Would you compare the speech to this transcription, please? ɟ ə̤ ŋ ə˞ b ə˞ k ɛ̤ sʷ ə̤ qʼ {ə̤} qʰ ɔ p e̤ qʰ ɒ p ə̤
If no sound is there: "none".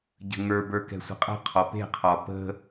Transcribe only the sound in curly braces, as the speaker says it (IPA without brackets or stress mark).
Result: ə̤